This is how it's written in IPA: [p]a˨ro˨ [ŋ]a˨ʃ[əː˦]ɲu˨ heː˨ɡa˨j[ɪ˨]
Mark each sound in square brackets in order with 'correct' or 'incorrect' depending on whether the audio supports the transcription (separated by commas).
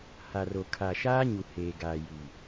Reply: incorrect, incorrect, incorrect, incorrect